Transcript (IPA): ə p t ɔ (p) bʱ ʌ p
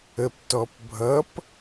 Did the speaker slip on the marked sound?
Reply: no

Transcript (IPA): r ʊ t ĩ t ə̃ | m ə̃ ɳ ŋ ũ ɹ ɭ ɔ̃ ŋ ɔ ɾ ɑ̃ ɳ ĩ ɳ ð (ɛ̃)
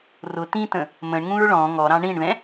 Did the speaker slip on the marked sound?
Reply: no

